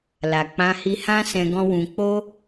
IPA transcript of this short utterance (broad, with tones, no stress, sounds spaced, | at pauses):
l a˨ k͡p ã˧ h i˧ h ã˦ s ɛ̃˧ ɡ ɔ̃˦ w ũ˧ k͡p o˦